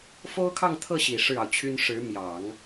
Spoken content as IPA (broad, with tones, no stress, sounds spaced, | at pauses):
f o˥ ʊ̯ kʰ ɑ˥˧ ŋ t̪ʰ ɤ˥˩ ɕ i˨˩ ʂ ɻ̩˥˩ ɑ˩ ʊ̯ t͡ɕʰ y˥ n ʂ ɻ̩˧˥ m j ɑ˨˩˦ ŋ